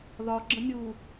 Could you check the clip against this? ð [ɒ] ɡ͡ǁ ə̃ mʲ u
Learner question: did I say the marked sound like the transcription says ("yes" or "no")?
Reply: yes